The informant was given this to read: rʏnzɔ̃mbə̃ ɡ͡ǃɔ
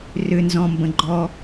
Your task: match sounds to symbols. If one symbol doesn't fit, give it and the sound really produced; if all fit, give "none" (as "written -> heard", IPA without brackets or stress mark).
none